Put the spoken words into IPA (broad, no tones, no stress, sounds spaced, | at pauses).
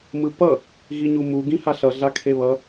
m ɯ p ʌ | ɣ i ɲ u m u ɡ ĩ h a ɬ ʌ ɮ a kʰ e β ʌ